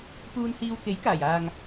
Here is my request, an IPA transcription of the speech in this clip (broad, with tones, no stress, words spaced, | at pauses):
puː˧nhiː˧w ke˨˥jkaː˨˩jaː˨ŋ